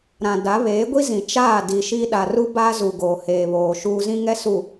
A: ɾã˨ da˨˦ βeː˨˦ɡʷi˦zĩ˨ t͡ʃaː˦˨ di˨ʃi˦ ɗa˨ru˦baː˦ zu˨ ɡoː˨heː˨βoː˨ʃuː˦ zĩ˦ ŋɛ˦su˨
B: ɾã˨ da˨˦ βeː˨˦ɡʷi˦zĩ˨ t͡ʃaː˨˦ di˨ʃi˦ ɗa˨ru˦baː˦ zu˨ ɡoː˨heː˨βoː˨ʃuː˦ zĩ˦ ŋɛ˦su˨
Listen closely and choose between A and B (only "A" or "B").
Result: A